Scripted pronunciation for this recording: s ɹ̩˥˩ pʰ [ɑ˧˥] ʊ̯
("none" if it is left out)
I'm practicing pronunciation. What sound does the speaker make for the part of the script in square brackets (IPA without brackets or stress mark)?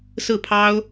ɑ˥